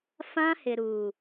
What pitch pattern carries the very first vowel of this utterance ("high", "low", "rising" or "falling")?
high